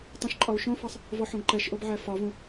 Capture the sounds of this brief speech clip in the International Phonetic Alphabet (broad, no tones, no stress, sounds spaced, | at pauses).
tˤ õ ʃ ǃʼ ɒ u̯ ʃ õ f ɑ sˤ | v ɔ ħ õ ɡ ǃ ɛ ʃ ʔ o b ʕ æ f ɒ v ũ